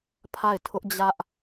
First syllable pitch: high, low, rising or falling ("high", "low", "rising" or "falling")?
falling